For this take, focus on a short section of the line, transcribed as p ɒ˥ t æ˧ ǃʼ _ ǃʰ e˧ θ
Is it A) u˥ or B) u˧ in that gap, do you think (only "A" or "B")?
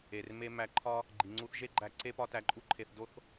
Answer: A